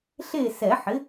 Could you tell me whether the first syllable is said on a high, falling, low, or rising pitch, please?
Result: falling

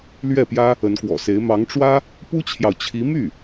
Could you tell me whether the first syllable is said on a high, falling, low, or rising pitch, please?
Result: falling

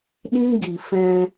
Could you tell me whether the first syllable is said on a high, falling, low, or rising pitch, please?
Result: high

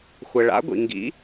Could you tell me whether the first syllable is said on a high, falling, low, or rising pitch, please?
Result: low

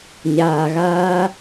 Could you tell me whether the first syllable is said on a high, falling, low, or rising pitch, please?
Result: low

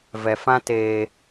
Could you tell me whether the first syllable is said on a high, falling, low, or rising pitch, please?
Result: low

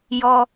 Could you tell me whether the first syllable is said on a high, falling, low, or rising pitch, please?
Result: high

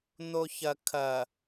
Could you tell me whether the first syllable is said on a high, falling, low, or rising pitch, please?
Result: low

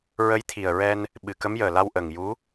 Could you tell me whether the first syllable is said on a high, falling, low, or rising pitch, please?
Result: rising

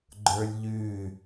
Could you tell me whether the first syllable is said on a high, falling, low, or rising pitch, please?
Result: high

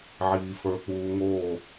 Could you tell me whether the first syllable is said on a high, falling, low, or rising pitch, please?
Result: low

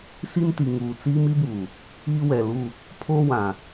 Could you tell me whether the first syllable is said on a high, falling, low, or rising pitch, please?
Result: high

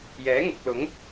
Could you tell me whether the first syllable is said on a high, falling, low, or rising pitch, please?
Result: rising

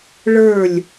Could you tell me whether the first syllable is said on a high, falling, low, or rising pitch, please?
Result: falling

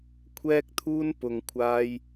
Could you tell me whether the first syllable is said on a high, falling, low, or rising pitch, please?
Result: high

